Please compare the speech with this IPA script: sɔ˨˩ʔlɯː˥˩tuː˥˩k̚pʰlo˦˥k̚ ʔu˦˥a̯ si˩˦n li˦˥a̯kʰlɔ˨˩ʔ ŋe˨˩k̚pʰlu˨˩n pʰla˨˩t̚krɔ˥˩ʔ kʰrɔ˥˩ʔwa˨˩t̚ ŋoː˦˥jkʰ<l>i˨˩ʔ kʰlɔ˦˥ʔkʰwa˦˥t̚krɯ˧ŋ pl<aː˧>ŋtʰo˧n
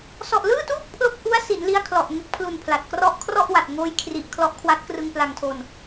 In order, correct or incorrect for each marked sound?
incorrect: r, incorrect: a˧

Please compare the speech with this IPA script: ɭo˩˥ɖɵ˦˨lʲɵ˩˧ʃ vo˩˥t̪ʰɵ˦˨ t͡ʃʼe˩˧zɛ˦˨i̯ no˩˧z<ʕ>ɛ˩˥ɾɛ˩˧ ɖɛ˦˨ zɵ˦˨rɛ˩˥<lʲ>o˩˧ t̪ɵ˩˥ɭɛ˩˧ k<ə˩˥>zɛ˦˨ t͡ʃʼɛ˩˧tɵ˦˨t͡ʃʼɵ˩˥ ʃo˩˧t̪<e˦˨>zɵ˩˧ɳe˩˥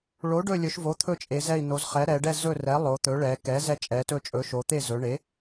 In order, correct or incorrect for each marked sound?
incorrect: χ, incorrect: lˠ, incorrect: ɛ˩˥, correct

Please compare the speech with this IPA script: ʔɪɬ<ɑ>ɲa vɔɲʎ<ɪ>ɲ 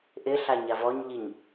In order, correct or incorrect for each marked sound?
incorrect: a, incorrect: i

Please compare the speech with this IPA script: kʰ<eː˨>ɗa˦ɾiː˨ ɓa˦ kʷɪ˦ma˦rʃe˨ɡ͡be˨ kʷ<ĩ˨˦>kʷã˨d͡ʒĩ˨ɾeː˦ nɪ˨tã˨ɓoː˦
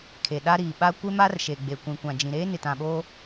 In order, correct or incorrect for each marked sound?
incorrect: e˨, incorrect: ĩ˨

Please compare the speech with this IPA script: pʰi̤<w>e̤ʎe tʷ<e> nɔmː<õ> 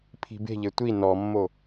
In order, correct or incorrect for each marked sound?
incorrect: b, incorrect: i, incorrect: o

